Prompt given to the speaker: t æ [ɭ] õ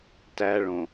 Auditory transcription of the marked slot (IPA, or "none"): ɭ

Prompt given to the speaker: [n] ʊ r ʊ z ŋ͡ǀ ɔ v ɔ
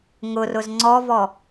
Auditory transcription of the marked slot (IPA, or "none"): ŋ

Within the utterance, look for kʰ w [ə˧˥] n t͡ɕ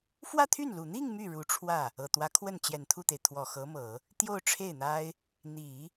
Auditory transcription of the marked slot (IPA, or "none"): ə˥˩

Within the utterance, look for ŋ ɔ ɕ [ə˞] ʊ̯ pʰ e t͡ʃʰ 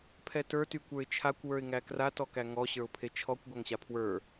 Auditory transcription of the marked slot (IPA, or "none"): ə˞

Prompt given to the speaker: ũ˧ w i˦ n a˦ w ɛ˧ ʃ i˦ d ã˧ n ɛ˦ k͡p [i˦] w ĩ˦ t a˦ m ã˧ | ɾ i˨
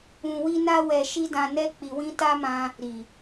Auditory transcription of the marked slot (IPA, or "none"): i˧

